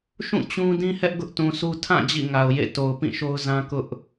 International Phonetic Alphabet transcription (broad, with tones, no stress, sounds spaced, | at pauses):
ʃ ũ˦˨ t͡ɕ ũ˦ d ĩ˦ h ɛ˦ ʔ ɡ ʊ˦ ʔ t ũ˨ sʰ u˦ tʰ ã˦˨ d͡ʑ ḭ˦˨ ŋ a˨ ʊ̯ j ḛ˦˨ t o˨ ʊ̯ p ĩ˦˨ ʃ o˦ ʊ̯ z ã˦ k ʊ˦ ʔ